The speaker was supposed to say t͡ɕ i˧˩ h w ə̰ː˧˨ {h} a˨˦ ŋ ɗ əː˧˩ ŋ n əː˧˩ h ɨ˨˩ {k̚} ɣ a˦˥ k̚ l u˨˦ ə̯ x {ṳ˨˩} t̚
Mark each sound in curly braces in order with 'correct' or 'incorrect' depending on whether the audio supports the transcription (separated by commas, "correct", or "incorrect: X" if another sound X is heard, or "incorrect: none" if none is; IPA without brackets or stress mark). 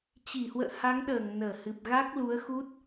correct, incorrect: p̚, incorrect: u˦˥